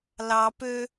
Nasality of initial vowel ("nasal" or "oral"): oral